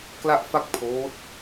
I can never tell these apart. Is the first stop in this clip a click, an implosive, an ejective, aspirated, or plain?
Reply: plain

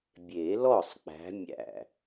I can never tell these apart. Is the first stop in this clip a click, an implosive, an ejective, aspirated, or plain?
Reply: plain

